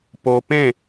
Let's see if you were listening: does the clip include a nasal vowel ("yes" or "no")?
yes